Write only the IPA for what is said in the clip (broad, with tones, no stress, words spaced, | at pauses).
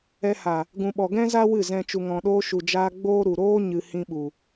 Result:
ɛ˧ha˨ | ɡũ˨ɓɔ˨ɡɛ̃˦za˦ wɨ˦˨zɛ̃˧ t͡ʃu˨ŋɔ̃˨ɗoː˧ ʃu˨d͡ʒaː˧ ɡ͡boː˦ɾu˨ ɾoː˦ɲɨ˨ hĩ˧ɓu˨